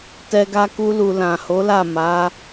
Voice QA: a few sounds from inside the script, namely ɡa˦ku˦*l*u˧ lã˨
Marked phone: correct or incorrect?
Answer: correct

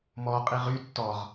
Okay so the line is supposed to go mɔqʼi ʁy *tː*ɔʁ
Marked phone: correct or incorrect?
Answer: correct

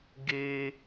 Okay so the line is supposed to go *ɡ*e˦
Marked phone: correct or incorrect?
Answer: correct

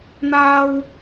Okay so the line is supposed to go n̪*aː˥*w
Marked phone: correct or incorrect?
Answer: correct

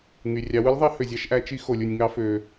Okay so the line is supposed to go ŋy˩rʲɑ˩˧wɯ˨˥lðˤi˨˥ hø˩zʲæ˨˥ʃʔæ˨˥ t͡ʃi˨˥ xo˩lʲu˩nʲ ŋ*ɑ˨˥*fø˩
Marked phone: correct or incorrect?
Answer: correct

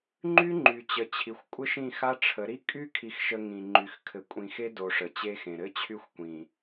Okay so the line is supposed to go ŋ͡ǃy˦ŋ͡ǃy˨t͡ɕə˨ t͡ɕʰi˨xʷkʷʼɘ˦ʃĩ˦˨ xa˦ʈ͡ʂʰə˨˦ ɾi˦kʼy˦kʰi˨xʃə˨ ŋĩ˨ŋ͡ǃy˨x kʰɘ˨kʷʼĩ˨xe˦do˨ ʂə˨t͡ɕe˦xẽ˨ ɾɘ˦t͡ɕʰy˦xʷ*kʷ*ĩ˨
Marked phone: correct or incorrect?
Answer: correct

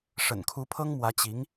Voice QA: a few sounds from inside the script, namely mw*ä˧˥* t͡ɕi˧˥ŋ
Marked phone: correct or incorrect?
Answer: correct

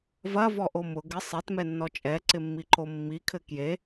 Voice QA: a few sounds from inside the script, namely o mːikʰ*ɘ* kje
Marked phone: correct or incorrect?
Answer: correct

